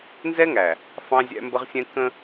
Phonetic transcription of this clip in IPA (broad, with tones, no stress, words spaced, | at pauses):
nzɛ˦ŋæ˨ | fɑ̃˦zʲæ̰˦mbə˦ʁsʲɛ̃˦ kə̃˦